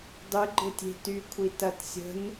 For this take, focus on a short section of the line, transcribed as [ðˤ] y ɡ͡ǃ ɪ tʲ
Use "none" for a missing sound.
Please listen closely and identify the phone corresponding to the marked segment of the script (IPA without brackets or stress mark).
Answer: dˤ